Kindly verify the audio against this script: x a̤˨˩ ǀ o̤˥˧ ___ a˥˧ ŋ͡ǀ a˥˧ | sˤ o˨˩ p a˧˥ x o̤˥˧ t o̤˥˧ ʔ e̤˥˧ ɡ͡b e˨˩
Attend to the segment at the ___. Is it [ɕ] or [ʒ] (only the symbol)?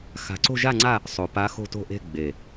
ʒ